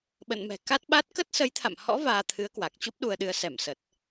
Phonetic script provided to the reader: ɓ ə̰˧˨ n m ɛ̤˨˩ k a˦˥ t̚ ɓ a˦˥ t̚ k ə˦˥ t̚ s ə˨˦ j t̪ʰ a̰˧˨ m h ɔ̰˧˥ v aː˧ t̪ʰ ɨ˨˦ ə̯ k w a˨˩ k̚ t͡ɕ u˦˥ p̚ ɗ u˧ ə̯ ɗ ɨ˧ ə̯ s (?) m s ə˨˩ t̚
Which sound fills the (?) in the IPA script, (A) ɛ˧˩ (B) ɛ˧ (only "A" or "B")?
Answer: A